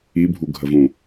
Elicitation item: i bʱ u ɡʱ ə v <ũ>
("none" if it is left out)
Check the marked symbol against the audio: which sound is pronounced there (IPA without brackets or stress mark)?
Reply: ũ